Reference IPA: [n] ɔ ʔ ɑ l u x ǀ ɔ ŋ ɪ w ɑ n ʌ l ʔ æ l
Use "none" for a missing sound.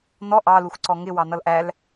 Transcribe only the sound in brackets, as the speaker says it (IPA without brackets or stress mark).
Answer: n